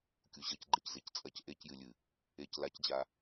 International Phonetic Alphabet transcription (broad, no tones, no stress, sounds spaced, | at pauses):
kʲ u ʑ ɐ c ɡ͡ǃ e c z e c t͡sʼ ɐ c ʔ e c j ɨ lʲ ɨ | e c l a c d͡ʑ a